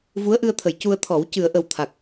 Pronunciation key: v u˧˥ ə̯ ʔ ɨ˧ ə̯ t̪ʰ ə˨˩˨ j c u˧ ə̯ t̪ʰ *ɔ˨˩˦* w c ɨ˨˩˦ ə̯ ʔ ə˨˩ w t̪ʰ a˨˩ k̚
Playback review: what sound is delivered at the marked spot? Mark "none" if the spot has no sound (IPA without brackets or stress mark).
ɔ˨˩˦